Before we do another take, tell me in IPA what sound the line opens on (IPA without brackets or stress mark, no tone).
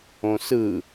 õ